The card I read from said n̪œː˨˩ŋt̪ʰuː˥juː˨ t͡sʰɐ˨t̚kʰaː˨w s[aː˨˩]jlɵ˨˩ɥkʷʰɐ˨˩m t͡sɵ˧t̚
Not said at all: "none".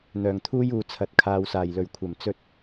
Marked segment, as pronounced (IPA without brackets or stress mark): aː˨˩